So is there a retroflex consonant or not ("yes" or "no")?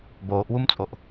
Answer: no